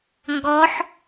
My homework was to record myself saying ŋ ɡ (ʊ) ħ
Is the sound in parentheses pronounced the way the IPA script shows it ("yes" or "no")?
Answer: no